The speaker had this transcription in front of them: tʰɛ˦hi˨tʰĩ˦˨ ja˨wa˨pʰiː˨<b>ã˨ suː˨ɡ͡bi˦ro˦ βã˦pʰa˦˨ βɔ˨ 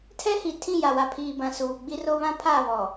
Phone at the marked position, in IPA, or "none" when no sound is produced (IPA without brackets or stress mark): b